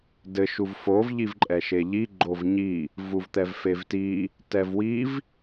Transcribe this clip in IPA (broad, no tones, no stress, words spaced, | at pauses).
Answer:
dɘ ʃuvfov ʎivǃʼɛʃeʎi ɡ͡ǃovɲi | vuvt̪ɛvfevti | tɛvwiv